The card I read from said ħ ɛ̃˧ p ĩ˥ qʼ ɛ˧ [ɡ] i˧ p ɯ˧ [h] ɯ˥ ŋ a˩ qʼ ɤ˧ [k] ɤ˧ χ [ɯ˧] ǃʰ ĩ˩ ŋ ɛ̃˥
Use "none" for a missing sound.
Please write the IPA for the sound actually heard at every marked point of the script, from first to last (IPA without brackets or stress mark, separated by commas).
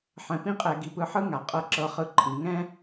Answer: ɡ, ħ, ǁ, ɯ˧